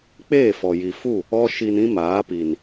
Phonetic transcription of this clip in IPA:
k͡p eː˦˨ f ɔ˨ j i˨ f u˦˨ | ɔ˦ ʃ i˧ n ĩ˦ m aː˨˦ p i˨ n

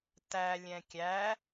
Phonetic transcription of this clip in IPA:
t æ lʲ ɛ̃ kʲ æ

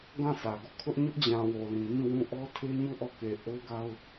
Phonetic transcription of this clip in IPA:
ɡ ã˦˨ sʰ ä˨ ɡ ɔ˦˨ kʰ ʊ˦ ʔ ɲ ʊ˦ ʔ d͡ʑ ã˨ w o˨ l ĩ˨ ŋ ĩ˦˨ w ũ˦˨ ʔ ɔ˦ tʰ e˦ ɲ u˦˨ ʔ ɔ˦˨ k e˨ ʔ o˦ ɡ a˦ ʊ̯

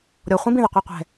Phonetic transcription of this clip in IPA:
ɾʲ ɔ χʷ ĩ b ĩ ð ɑ qʷ ɑ qʷ ɛ̤

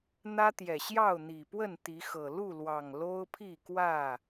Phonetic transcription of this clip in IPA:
n̪ ä˦ t̪ j ɛ˨˩ ɕ j ɑ˥˨ ʊ̯ n̪ i˨˩ p w ə˥˨ n t̪ i˨˦ x ɤ˨˩ l u˥˨ l w ɑ˨˩ ŋ l o˦ ʊ̯ pʰ i˥˨ k w ä˥˨

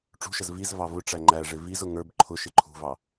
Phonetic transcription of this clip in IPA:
ʈ͡ʂ ṳ ʃ ə z v i z v ɑ v ʊ ʈ͡ʂ æ ŋ͡ǃ æ ʐ ɪ v i z ʊ ŋ ə˞ b ǃʰ ʊ ʃ ɪ ǃʰ ṳ v ɑ

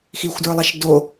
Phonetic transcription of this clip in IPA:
x i xʷ d ə˞ lˠ a ʃ d o

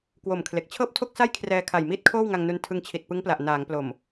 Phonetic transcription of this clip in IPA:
k w o˨˩ m kʰ l e˨˩ k̚ t͡ɕʰ ɤː˥˩ p̚ tʰ o˥˩ k̚ s a˥˩ j kʰ r ɛː˧ kʰ a˨˩ j m iː˥˩ t̚ kʰ oː˥˩ w ŋ a˧ ŋ n u˧ n tʰ ɯ˧ ŋ t͡ɕʰ i˨˩ t̚ p ɯ˦˥ ŋ p l a˨˩ ʔ n aː˩˦ ŋ p l o˨˩ m

